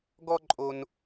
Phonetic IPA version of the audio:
ɡɔ˥ǃʼo˧n

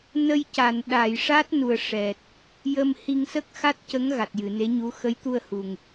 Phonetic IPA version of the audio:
nə˧jca˨˩˨n ɗa˨˩˨jʂa˦˥t̚nu˨˩ə̯ ʂɛ˨˩t̚ | jə˧mhi˧ŋ sə˦˥k̚xa˦˥t̚cə˧˥ŋ ɣa˨˩t̚jɨ˨˩˨ne˧˥ɲu˧˥ xə˧˥jt̪u˧ə̯hu˨˩ŋ

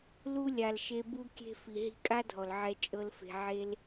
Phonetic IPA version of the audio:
lu˦lʲa˨lʃe˧ bu˧kʲe̤˧ fi˨ ɦi̤˧kʼa˦dʱɔ˨l ʕɛ˧ t͡ʃʼɤ˦lfe̤˧ ʕe˦l

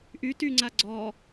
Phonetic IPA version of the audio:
ʔy tyŋ͡ǀa ɡ͡ǀɔ

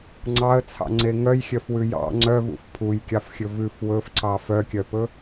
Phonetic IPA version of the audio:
ŋ͡ǀɑə̯t͡sʰɑ̰ŋ͡ǀe ŋœjxʲœfwʉ jɑ̰ ŋ͡ǀœvṵf pʰujkʲɑfxʲɵ vʉf wɵfǀɑ fœkʲœpɵ

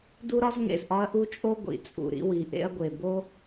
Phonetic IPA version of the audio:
du˥ɾɒ˥z ŋḛ˩zʔɒ˥ɐ̯ ʔu˥t͡ʃʼo˥ ɡʷḭ˩t͡sʼṵ˩ ɾḭ˥ wi˩ ʔḛ˥ɐ̯ɡʷe˩ bo˥

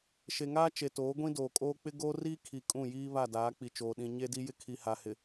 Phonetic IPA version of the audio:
ʃe˨ŋaː˦t͡ʃe˨toː˨˦ ɡʷĩ˦doː˨kʼoː˦ k͡pɪ˦ɡoː˦riː˦kʰi˨ kʼũ˦˨jiː˦ βa˦˨daː˨˦ k͡pi˨t͡ʃoː˨ɗĩ˨ ɲe˦di˦ jɪ˦kʰi˨ha˨hɪ˨

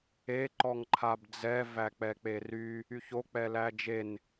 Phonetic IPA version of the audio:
e ǃɔŋǃʰabd͡zɛ væk͡pɛk͡pery | yçok͡pɛ læd͡ʒen

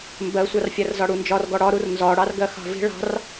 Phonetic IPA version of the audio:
mbɜsʷɑrfʲær zɒɽund͡ʒɒr ɡɔɽɒɾur nzɒɽɑrɡɜ xɑ̤vi̤ ɭɑ̤r

